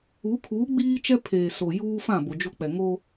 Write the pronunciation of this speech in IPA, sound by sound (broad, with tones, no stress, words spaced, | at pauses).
u˨˦ kʰuː˨˦ ɡ͡biː˦t͡ʃɛ˦pʰeː˨ so˨juː˦fã˦˨ bo˨d͡ʒo˦k͡pɛ˨ ŋo˦